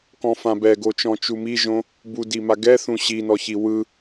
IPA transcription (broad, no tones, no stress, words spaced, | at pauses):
kɔ̃fãbɛɡo t͡ʃɔ̃t͡ʃumiʒõ | budima ɡɛθũ ɕinɔçi wɯ